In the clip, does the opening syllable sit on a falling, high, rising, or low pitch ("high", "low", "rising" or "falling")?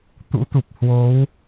rising